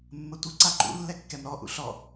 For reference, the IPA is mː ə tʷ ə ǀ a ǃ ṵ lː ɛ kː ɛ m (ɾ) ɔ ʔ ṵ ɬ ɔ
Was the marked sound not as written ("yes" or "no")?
no